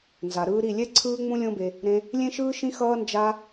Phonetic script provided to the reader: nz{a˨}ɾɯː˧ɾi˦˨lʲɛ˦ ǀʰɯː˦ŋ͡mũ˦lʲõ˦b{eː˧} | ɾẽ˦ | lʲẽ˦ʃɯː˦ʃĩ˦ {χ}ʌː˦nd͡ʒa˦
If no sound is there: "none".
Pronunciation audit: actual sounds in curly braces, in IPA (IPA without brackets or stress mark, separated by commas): a˨, e˧, x